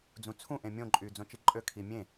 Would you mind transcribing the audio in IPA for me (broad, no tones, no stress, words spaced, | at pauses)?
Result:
d͡zũt͡sʰũ ʔẽmʲõ ǃʼyːd͡zõt͡ʃiǃʼø kʰimʲẽ